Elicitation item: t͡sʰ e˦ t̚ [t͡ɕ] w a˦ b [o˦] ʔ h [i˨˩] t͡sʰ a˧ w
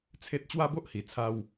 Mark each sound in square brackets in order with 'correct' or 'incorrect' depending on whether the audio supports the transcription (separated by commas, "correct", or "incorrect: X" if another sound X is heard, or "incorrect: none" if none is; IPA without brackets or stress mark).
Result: correct, correct, correct